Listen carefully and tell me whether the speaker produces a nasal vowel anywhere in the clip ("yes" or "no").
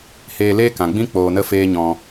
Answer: yes